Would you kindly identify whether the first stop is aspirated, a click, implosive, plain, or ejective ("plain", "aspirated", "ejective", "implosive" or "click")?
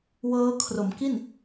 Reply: aspirated